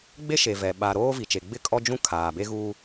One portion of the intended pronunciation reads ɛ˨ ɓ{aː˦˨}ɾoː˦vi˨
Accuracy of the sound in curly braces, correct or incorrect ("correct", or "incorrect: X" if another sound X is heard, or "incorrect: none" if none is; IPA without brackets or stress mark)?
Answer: incorrect: aː˨